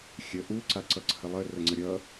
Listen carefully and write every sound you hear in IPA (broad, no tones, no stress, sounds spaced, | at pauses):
xʲ ə ʔ u ǀ a ǀ ʌ ǀʰ ə lˠ ə r ə ŋ͡ǀ ə ɾʲ ʌ